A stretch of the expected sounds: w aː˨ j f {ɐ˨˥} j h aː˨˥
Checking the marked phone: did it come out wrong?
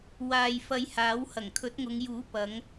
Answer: yes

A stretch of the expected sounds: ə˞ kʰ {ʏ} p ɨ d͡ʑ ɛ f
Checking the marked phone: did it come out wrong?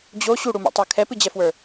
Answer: yes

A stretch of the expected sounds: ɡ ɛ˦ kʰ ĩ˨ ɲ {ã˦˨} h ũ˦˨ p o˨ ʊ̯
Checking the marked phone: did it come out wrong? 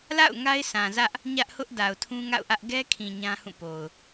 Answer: yes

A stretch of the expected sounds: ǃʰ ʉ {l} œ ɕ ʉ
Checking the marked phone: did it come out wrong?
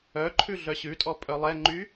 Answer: yes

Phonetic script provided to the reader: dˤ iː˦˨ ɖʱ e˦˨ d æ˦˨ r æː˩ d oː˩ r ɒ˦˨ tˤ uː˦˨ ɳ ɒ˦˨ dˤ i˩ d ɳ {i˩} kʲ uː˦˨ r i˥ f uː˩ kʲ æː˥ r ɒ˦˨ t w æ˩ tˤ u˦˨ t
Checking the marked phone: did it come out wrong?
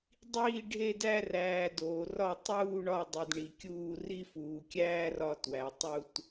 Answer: no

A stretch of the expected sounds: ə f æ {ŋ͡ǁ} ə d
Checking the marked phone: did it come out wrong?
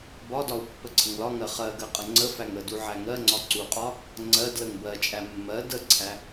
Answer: yes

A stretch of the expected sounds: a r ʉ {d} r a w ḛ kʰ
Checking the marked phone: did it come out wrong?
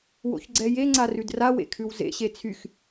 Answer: no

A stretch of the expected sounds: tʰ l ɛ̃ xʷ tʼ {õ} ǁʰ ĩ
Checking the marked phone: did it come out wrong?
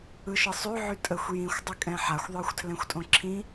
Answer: no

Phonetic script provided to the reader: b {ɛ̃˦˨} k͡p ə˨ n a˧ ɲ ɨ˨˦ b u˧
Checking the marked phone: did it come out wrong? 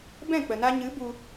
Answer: no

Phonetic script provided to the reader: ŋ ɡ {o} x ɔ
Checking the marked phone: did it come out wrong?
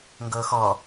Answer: yes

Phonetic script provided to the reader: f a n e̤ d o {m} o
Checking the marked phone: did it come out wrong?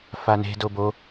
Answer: yes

